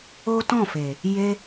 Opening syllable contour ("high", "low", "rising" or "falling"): high